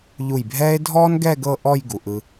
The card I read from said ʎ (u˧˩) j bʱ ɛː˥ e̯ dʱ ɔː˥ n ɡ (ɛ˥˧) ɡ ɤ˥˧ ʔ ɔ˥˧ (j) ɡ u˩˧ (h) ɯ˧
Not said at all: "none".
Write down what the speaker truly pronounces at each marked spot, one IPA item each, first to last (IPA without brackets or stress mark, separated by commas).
u˧˩, ɛ˥˧, j, ʔ